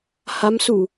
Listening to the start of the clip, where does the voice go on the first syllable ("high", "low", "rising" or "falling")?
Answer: rising